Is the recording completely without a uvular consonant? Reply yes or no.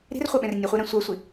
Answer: no